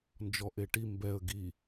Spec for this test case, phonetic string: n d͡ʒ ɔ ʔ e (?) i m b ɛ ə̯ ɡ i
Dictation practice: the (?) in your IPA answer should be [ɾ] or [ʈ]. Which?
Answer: ʈ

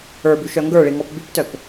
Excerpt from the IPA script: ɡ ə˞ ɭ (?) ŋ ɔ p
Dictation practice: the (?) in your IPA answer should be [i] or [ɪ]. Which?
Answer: i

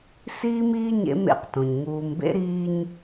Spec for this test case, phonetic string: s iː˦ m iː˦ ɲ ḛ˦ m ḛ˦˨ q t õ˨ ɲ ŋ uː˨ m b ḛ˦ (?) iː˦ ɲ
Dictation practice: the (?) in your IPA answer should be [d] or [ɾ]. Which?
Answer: ɾ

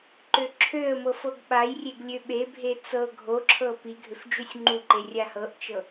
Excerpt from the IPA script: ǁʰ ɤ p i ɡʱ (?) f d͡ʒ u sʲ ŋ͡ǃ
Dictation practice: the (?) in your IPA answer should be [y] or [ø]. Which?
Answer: ø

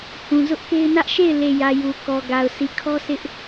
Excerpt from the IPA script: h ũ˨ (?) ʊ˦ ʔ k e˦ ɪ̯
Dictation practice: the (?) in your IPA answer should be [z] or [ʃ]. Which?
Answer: z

